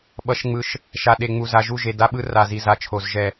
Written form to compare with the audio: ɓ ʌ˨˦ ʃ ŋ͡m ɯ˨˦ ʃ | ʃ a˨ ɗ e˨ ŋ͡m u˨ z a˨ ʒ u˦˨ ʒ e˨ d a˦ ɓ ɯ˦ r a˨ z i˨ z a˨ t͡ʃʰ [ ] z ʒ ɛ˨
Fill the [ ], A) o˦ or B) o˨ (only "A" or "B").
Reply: B